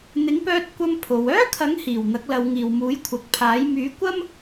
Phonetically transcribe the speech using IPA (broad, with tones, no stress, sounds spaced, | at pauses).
n̪ ɪ˨˥ ŋ p œː˧ t̚ kʷ ɐ˧ m pʰ o˨˧ w œː˥ kʰ ɐ˨˥ ŋ h iː˨˩ w n̪ ɐ˨˥ k̚ l ɐ˨˧ w ŋ iː˨ w m uː˨˥ j kʷʰ ɐ˨˥ k̚ pʰ aː˨˥ j m yː˨˥ kʷ ɐ˥ m